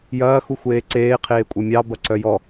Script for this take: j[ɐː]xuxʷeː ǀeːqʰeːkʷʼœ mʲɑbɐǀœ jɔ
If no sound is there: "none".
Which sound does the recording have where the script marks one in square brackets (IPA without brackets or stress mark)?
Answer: ɐː